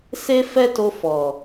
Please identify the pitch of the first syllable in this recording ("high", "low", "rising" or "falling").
high